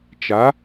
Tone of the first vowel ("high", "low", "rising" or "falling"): rising